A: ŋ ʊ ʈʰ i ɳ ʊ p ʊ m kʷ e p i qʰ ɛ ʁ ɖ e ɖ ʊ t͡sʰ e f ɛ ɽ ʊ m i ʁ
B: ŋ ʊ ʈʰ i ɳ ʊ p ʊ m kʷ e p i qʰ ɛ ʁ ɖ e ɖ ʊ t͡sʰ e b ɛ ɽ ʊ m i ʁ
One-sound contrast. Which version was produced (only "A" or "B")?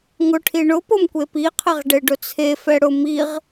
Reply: A